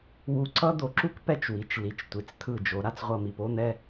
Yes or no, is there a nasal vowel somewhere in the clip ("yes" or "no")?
no